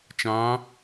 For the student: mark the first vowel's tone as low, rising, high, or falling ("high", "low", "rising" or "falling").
rising